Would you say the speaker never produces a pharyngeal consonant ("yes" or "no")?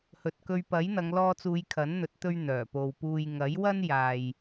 yes